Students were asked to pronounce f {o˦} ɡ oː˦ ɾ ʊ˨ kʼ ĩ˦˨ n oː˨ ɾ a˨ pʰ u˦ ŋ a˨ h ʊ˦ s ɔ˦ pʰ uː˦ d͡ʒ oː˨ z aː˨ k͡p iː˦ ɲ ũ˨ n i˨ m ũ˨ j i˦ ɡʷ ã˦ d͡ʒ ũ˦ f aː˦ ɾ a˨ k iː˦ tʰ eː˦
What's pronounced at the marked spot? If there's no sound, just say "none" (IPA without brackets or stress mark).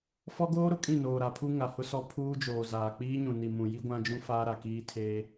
ɔ˦